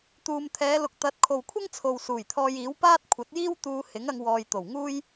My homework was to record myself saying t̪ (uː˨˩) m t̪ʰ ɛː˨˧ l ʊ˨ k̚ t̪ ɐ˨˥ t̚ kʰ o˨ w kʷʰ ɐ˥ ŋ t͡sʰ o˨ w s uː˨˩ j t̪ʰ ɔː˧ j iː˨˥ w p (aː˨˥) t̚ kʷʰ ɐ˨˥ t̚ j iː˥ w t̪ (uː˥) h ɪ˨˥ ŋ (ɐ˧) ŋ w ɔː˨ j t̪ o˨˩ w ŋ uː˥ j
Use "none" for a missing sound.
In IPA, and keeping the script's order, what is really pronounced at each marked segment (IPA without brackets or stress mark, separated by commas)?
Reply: uː˨, aː˥, uː˧, ɐ˧